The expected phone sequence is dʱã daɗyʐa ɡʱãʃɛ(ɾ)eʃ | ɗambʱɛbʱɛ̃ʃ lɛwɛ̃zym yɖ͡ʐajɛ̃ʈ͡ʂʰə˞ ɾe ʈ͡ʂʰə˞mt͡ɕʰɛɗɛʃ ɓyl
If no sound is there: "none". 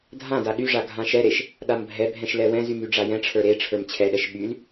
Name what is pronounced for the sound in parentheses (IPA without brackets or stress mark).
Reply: ɾ